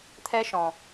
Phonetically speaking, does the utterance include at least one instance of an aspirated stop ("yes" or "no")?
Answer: yes